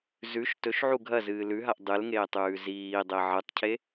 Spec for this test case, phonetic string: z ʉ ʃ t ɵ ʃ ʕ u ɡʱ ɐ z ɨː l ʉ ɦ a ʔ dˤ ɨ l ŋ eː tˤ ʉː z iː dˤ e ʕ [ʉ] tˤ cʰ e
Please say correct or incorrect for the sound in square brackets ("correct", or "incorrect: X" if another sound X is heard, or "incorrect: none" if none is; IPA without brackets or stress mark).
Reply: incorrect: ɨ